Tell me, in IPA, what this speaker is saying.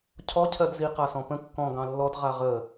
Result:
cʰ ɔ cʰ ɜ d z i q a s ɔ̃ p ə̃ kː ɔ̃ ɡ ɑ̃ lː ɔ d ʁ a ʁ ə

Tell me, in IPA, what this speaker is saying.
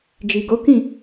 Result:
d͡ʒ i˨ ɡ o˨˦ k ĩ˦˨

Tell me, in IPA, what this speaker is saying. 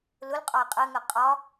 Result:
l ʊ l qʼ ɒ ɪ̯ qʼ ɜ ŋ ɜ qʼ ɒ

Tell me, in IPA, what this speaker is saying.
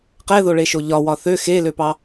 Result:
q ɛ ð o ɭ e ʃ o ʎ ɒ w ɒ θ ø x e l ø p ɑ

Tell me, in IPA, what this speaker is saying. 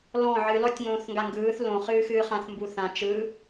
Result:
l ɔ̃ ʕ ɨ l ɔ tʲ ŋ õː θ ŋ ɡ a ŋ ɡ ɯː θ l õ χ ɨː x ɨː χ ã θ m b u θ ã t͡ʃ ɯ

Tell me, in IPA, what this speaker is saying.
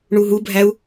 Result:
ɳ u ɦ u bʱ æ u̯

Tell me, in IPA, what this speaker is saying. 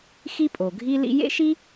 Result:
x i˥ pʼ o˩ ɡʱ i˥ l ḭ˥ j ḛ˥ ʃ i˥

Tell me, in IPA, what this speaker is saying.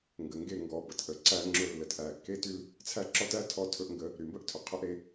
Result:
ŋ ɡ ə˨ ŋ ɡ e˦˨ ŋ ɡ ɔ˨ b ə˨ t ʔ ə˨ ǀ æ˦ ŋ͡ǁ ɵ˦ lː ə˨ t ʔ æ˨ kː e˦ t y˦ l | t͡sʰ æ˦˨ ǁ ɔ˦ t æ˦ tʰ ɔ˦ tʰ ɵ˦ ʔ ŋ ɡ ə˦ | ɾ y˨ m b ə˦ ʔ tʰ ɵ˨ qʰ ɵ˦ ʔ ɾ e˦

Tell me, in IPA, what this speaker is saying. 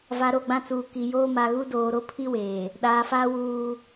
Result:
v a˨ ɾ o˦˨ ɡ͡b ã˦ t͡s uː˨ k i˨ j oː˦ m a˨ ɣ u˦ d oː˨ ɾ o˦ pʰ i˦ w eː˨ | ɗ aː˨ f aː˦ w uː˦

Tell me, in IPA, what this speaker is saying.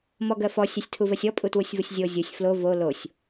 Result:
m ɔ ɡ ɜ f ɔ sʲ ɜ sʲ tʰ u v ɜ sʲ ɔ pʼ u t w u sʲ v u sʲ zʲ o zʲ u sʲ f l o v o l o sʲ

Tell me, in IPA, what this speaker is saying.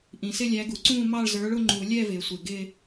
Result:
ʔ ĩ˩ s ɪ˥˧ lʲ æ˨˥ ɡ u˩ ǀ ũː˥˧ m ɑ˥˧ ɭ z ə˞˨˥ ɭ ʊ˥˧ ŋ͡ǃ u˨˩˦ lʲ ɛ˥˧ v ɪː˩ sʷ ɪ˩ ɡ ɪː˥˧

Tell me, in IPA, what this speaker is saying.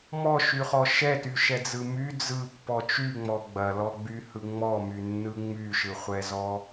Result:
m ɔ ʃ y χ ɔ ʃ ɛ t y ʃ ɛ d͡z ɯ m y d͡z ɯ pː ɔ t͡ʃ y ŋ͡m ɔ ɡ͡b ɐ l ɔ ɡ͡b y h ɯ ŋ͡m ɔ m y nː ɯ ŋ͡m y ʃ ɯ χʷ ɛ z ɔ

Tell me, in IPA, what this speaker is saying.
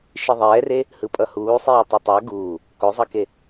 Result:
ʃ i ðˤ ɛː r e | h ɯ pʼ ʌ h uː sˤ iː tˤ ɯ tˤ a ɡ uː | k o zˤ ʌ k e

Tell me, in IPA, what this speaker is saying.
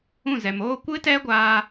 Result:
ũ˦˨ z ɛ˨ m oː˦ kʷ ɨ˦ t ɛ˦ ɡʷ aː˧

